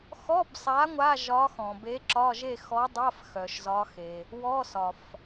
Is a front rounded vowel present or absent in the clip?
present